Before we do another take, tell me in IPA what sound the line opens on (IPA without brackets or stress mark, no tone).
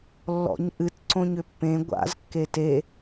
lː